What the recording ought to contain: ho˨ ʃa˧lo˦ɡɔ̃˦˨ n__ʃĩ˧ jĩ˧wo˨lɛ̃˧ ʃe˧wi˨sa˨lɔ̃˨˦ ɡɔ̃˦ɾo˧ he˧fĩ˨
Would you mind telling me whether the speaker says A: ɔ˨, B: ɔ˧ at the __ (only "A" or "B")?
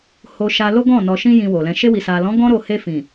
A